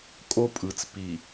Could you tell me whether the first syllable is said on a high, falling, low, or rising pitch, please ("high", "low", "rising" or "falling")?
high